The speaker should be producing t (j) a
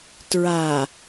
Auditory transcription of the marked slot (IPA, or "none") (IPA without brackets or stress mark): ɹ